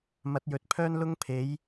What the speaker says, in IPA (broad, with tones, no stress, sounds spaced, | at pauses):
m ɐ˨˥ t̚ j ɵ˨ t̚ pʰ œː˥ n l ʊ˥ ŋ pʰ e˨˥ j